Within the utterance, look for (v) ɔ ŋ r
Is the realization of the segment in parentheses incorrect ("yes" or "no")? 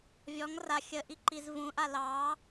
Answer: yes